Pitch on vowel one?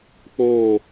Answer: falling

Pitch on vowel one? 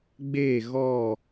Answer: falling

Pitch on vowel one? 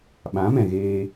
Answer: rising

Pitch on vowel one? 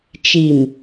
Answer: low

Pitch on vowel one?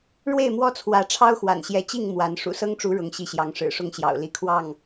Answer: falling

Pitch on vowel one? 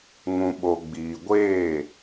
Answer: low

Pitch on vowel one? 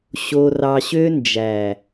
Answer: low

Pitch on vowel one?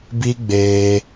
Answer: high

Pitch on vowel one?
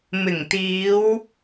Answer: low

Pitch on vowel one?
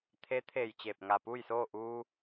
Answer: rising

